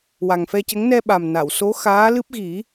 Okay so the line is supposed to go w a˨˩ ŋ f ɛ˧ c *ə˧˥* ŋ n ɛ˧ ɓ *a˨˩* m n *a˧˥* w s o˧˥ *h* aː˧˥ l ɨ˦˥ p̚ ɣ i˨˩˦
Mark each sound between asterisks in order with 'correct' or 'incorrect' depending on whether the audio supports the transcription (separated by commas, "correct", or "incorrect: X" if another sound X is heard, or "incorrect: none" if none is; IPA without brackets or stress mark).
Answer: correct, correct, incorrect: a˨˩˨, incorrect: x